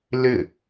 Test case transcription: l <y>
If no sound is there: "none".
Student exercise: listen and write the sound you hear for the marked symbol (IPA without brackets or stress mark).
ɪ